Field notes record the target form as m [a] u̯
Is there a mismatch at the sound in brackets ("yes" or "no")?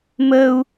yes